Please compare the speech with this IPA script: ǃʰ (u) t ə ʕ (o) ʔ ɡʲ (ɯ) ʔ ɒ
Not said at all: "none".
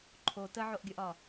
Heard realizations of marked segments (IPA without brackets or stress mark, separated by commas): o, o, ə